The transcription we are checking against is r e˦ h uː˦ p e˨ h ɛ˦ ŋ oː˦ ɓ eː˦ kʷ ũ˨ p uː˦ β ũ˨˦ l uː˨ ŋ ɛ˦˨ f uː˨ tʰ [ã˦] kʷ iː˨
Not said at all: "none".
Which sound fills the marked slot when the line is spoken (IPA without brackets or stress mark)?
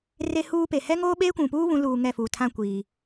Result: ã˦˨